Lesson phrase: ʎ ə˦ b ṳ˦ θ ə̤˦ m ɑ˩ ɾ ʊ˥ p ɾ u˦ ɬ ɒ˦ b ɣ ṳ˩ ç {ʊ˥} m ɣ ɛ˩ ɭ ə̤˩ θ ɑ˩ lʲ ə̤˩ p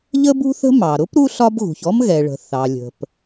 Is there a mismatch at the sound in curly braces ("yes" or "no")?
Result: yes